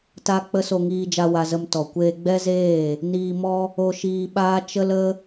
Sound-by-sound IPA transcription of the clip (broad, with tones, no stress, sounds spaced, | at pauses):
t a˦ k͡p ə˦ s o˧ ŋ iː˧ d͡ʒ a˧ w a˧ z ə˧ m t ɔ˨ kʷ eː˧ ɡ͡b ɛ˦ z eː˦˨ | n iː˧ m ɔ˦ | o˧ ʃ iː˧ ɓ aː˦ t͡ʃ ə˦ l ə˦